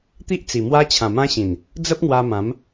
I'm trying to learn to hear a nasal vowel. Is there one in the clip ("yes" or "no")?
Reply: yes